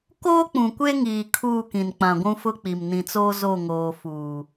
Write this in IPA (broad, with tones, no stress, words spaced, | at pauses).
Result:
koː˦k͡pũ˨kʷe˦ŋiː˨ kʰuː˦˨kĩ˨nk͡pã˨ ɡʷũ˦fʊ˦k͡pi˨m nĩ˨t͡soː˦ zo˦˨ŋoː˨ fuː˨